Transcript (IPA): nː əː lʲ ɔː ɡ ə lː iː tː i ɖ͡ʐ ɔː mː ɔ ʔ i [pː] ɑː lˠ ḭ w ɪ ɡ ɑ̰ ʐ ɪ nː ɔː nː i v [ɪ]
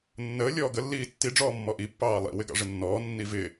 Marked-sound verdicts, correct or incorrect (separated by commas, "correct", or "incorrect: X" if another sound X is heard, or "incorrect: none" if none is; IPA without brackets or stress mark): correct, incorrect: ɪː